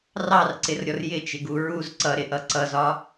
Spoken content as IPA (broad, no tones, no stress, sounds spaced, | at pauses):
r ɑ r ǀ ɪ r ɾʲ ɔ r j ɪ t͡ʃ ɪ ɡ u ɹ u z ǀ ʌ ɾ ɪ ʔ ʌ ǀ ʌ z ɒ